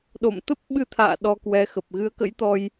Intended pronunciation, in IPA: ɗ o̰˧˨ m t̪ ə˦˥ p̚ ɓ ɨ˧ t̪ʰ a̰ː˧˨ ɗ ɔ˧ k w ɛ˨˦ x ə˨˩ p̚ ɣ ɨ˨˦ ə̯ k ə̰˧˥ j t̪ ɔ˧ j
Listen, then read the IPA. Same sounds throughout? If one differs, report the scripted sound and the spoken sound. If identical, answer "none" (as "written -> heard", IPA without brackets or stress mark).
none